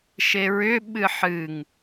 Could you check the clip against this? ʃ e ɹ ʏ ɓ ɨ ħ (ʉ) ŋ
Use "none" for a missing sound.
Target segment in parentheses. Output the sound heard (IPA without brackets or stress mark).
ɨ